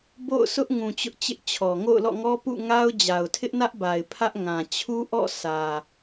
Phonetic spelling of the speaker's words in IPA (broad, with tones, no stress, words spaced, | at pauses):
bo̰˦˨ʊ̯ sʊ˦ʔŋũ˨ t͡ɕʊ˦ʔt͡ɕɪ˦ʔt͡ɕʰɔ˨ ŋo̰˦˨ʊ̯lɔ̰˦˨ŋɔ˦ pṵ˦˨ŋa˦ʊ̯ d͡ʑa˨ʊ̯tʰɪ˦ʔnä˦ʔba˨ɪ̯ pʰä˦ʔ ŋã˨ t͡ɕʰu˦ʔɔ̰˦˨ sʰä˨